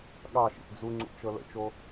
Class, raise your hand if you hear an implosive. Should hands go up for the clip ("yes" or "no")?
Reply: yes